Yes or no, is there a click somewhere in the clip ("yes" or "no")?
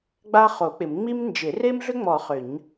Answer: no